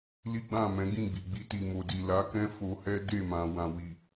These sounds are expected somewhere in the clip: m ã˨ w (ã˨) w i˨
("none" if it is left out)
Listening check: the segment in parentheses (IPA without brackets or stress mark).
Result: ã˨